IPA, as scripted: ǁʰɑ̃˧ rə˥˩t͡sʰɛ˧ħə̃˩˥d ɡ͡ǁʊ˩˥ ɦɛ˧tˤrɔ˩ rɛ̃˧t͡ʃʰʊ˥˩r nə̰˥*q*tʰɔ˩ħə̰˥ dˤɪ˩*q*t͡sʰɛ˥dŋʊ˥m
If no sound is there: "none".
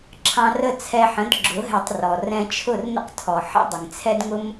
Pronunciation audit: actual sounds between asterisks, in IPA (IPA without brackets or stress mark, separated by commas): q, ŋ